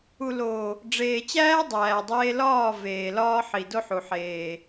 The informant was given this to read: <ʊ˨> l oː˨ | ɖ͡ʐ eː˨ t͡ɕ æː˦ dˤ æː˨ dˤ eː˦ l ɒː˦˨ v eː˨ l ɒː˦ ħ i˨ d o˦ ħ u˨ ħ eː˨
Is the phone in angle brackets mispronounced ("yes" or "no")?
yes